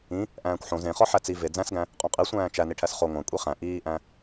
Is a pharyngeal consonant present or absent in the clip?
present